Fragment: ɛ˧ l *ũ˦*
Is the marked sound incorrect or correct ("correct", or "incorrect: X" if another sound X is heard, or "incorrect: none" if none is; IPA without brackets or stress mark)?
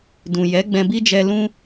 correct